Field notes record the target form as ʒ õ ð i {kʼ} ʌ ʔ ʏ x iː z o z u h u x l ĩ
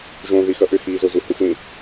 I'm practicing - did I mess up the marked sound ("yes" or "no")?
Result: yes